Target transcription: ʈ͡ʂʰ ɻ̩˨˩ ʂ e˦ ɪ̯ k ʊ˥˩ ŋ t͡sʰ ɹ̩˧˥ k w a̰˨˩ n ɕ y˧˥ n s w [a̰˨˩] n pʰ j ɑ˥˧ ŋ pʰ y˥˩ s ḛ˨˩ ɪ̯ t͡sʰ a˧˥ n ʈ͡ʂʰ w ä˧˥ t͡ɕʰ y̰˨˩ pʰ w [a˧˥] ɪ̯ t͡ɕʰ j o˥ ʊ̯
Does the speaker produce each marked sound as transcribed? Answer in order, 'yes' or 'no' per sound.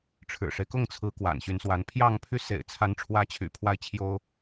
no, no

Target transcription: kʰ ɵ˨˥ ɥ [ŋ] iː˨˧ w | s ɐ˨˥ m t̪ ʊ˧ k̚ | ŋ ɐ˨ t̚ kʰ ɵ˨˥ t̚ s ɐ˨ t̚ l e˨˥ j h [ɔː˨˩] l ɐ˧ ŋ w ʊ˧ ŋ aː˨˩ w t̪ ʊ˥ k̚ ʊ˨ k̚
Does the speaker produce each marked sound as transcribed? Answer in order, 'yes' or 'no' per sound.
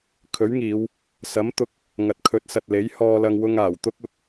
yes, no

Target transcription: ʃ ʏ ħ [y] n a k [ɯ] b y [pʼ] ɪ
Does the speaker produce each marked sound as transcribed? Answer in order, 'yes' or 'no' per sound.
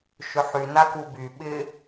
yes, no, no

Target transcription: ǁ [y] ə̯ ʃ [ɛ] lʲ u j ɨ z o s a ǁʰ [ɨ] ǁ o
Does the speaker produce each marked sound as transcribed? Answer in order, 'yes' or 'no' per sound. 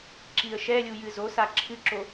no, yes, yes

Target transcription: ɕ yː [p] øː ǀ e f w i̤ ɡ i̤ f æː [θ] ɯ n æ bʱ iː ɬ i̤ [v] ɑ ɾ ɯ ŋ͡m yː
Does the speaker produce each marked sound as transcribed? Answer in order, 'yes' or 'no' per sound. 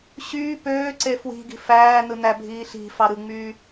yes, no, no

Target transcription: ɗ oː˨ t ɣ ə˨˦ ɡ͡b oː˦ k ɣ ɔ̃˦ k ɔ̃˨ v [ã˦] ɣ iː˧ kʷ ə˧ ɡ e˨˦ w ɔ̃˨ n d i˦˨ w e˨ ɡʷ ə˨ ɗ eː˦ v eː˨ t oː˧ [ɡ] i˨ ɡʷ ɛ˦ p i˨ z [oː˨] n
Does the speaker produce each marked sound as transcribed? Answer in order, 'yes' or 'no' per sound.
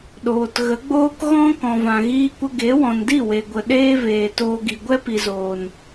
no, yes, yes

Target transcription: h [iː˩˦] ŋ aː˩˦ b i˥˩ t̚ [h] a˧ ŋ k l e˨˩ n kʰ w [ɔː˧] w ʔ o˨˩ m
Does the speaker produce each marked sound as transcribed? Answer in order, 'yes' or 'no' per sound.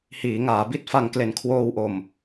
yes, no, no

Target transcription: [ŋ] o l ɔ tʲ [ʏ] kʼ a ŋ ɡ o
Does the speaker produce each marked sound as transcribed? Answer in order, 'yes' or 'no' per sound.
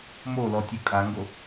no, no

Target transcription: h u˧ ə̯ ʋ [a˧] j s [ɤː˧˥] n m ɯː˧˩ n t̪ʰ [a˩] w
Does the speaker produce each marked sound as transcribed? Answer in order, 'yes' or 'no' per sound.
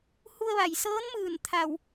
no, yes, no

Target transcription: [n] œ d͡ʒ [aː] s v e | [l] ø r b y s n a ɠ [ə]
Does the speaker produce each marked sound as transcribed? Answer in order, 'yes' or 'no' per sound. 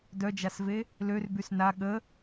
no, no, yes, yes

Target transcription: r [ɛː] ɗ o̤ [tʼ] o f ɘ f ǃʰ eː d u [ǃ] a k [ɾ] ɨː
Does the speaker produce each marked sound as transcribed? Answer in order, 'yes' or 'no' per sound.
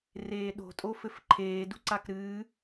no, yes, no, yes

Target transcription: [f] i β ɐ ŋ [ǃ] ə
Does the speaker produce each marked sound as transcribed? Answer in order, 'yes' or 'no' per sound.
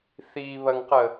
no, no

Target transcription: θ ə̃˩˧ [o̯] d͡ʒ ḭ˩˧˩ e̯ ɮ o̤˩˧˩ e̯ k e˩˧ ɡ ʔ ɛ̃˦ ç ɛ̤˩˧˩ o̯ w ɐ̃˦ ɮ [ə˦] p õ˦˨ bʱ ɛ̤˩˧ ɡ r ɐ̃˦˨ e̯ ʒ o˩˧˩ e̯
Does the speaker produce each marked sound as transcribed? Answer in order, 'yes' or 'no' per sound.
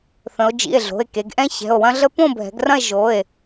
yes, yes

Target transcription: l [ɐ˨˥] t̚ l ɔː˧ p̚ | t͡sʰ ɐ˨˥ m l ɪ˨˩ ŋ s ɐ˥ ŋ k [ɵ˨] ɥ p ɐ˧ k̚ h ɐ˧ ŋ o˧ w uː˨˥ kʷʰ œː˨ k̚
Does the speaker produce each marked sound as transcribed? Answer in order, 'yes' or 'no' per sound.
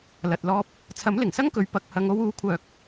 no, no

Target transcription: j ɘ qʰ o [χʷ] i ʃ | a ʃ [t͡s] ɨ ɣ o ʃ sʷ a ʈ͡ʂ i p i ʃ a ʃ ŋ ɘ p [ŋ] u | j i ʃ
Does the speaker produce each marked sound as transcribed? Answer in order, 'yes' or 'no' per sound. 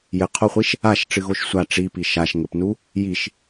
yes, no, no

